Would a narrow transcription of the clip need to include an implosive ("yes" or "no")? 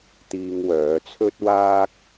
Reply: no